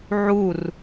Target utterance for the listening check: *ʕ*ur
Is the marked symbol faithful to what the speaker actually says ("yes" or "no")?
yes